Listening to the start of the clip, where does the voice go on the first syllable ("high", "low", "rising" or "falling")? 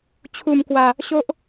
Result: low